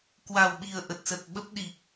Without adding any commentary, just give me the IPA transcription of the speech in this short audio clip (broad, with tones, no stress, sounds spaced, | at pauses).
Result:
k w a˨˩ w ɓ i˨˩ ə̯ ʔ ə˨˩ t̚ s ə˨˩ t̚ ɓ ə˦˥ p̚ ɗ i˨˩ k̚